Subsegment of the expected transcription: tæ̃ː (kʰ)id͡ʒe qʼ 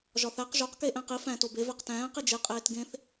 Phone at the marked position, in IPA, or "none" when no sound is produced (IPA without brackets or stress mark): q